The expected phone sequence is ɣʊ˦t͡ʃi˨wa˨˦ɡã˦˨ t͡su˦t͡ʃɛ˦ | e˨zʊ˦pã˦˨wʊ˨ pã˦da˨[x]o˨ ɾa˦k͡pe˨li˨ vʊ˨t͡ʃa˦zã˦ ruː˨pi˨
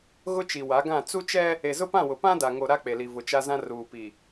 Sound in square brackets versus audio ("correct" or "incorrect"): incorrect